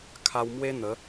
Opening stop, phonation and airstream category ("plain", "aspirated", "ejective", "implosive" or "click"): aspirated